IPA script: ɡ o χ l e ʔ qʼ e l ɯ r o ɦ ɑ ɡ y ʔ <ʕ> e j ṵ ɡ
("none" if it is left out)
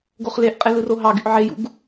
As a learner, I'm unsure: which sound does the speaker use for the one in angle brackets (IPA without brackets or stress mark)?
ʕ